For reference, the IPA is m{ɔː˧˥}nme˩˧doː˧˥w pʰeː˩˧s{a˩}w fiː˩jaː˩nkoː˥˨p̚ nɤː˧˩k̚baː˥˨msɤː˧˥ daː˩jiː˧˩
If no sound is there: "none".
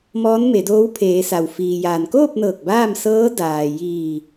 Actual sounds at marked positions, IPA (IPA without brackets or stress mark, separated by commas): ɔː˧˥, a˩